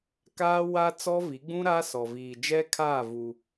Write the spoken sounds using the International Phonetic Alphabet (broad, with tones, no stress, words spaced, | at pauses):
kaː˦ wa˦ t͡sɔ˦vi˨˦ɡ͡bũ˦ ɾaː˦sɔ˨viː˨ d͡ʒɛ˦kʰaː˦˨ vu˦